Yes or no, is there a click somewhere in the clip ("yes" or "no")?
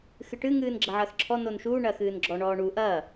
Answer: yes